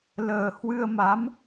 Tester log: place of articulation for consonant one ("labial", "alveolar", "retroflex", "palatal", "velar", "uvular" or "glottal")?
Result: alveolar